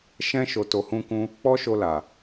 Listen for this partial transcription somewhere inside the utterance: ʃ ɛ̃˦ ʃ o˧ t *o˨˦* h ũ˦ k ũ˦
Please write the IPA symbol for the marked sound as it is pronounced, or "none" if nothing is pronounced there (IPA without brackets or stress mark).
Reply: o˧